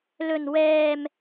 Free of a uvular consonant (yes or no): yes